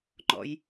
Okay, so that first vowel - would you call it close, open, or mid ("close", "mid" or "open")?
mid